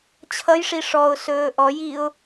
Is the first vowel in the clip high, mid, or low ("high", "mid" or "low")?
mid